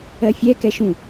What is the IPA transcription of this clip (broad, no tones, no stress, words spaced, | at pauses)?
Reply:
ɜfʲɛkɛ ʃũ